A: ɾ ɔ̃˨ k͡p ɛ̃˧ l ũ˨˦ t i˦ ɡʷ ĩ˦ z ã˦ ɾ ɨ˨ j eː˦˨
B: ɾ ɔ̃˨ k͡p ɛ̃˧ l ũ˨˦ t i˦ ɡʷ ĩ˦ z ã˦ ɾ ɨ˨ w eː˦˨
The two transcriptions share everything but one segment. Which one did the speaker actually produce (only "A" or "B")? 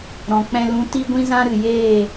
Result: A